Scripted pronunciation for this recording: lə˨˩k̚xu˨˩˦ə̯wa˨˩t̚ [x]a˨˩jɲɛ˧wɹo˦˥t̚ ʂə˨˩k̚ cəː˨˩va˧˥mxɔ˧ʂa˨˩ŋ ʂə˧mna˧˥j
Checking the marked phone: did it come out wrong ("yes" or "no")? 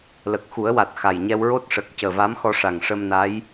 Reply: no